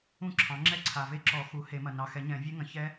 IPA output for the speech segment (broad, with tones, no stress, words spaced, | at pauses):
ũ˥˩ǁʰɑ̃˩˥ŋ͡ǁɛ˥˩ ǀʰa˨ve˦˥ ǁɔ˨˩˦xu˩˥ he˨˩˦mɐ˨ nɑ˨xɛ˨˩˦ɲɛ̃˨˩˦ vʲe˦˥ŋɐ̃˩˥çɛ˦˥